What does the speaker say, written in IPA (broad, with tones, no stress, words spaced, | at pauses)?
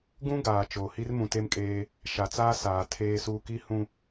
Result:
ɡũ˦ ɡaː˨t͡ʃoː˨hi˦r mũ˨te˦mkʼeː˦ | ʃa˨t͡saː˦saː˨ tʰeː˦suː˦ ki˦hũ˦